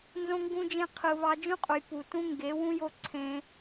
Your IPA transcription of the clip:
n z õ˧ ŋ ɡ ũ˧ d͡ʒ ẽ˧ qʰ ɯ˨ β ɑ˧ d͡ʒ ũ˦ qʼ u˨ j p u˨ t ũ˦ ŋ ɡ e˨˦ w ũ˦ j o˦ ǀʰ ẽ˦

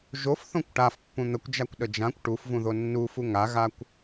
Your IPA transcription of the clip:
ʒ o f θ õ kʷ ʈ a f pː ũ n̪ ə kʷ d͡ʒ a kʷ ɗ ə d͡ʒ ã kʷ ʈ u f v ũ ð o nː u f u ŋ a ɣ a kʷ

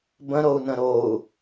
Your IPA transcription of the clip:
b ə̃ ɾ o u̯ n ə̃ ɾ o u̯

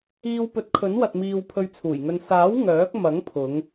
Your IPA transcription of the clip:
iː˧ w p ɵ˨˥ t̚ kʰ ɵ˨˥ n w ɐ˨ t̚ m iː˧ w pʰ ɵ˧ ɥ t͡sʰ uː˨˩ j ŋ ɵ˧ n s aː˨˥ w ŋ œː˨˥ k̚ m ɐ˨˥ ŋ pʰ ʊ˨˧ ŋ

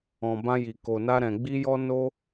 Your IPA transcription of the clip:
ɔ̃˨ b ã˧ j i˨ k o˨ n a˧ ɾ ɛ̃˨ ɡ͡b i˧ j ɔ˧ n o˧

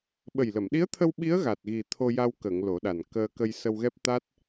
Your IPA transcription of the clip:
ɓ ə˨˩ j l ə˨˩˨ m ɗ i˧˥ ə̯ t̪ʰ ə˧ w ɓ i˧˥ ə̯ ɣ a˨˩ t̚ ɣ i˨˩ t̪ʰ o˧ j a˧ w k ə˨˩˨ ŋ l o˨˩˦ ɗ a˨˩ n k əː˧ k ə˧ j s ə˧ w ɣ ɛ˦˥ p̚ t̪ a˦˥ t̚

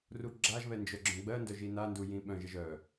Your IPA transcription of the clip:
r u ɡ͡ǁ a ʒ β ɛ n d͡ʒ œ ɡ͡ǁ œ̃ ɡ͡b ɜ n d œ ʒ i n a n d u j ĩ ɓ œ̃ ʒ ɛ ʒ œ

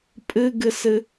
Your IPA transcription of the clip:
pʼ ɨ ɡ ɨ s ɨ

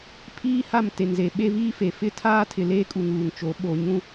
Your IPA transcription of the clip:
pʰ iː˦ h a˦˨ m t e˨ n z e˨ ɓ e˦ v iː˦ f e˨ f ɪ˦ tʰ aː˦ tʰ ɪ˨ l eː˦ kʼ u˨ ŋ uː˨ ŋ t͡ʃ o˨˦ ɓ o˨ ɲ ũ˦

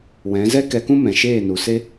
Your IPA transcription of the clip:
w ɛ̃˨˦ z ɛ˦ k ɛ˧ k ũ˦ m ɛ̃˨ ʃ eː˦˨ n u˨ s e˦

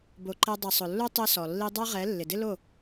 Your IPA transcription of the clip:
b o˨ ǃ ɛ˧ dˤ i˨ sˤ ʊ˨ lː u˦ tˤ e˧ s ɔ˨ lː i˧ dˤ a˦ ʁ ɛ˨˦ lː ɪ˨ d ɪ˦ l o˦˨

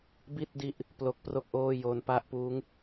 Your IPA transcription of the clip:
b i˥˩ t̚ d i˦˥ ʔ | p l o˦˥ k̚ p r o˥˩ k̚ ʔ oː˥˩ j o˧ n p a˥˩ ʔ p uː˦˥ ŋ

